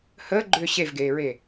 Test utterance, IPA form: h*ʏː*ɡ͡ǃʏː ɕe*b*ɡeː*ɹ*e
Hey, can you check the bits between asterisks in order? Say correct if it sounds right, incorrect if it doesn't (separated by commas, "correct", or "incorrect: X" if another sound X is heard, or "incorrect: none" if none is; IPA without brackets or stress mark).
incorrect: əː, incorrect: v, correct